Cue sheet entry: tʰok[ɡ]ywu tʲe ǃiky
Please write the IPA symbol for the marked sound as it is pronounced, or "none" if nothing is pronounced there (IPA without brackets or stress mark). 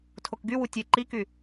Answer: ɡ